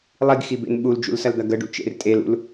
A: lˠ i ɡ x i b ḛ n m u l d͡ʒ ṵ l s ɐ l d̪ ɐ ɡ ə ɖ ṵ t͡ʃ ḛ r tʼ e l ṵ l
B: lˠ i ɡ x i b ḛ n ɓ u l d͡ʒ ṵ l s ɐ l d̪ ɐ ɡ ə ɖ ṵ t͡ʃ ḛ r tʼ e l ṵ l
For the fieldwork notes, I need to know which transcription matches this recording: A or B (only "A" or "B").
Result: B